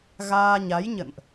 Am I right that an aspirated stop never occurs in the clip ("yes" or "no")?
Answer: yes